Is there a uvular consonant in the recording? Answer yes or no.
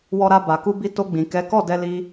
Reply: no